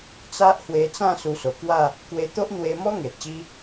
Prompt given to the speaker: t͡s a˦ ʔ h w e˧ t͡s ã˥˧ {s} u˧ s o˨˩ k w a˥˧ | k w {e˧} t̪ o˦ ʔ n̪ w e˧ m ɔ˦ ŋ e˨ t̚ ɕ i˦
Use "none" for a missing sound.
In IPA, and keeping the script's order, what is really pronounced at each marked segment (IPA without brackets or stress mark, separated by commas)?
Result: s, e˧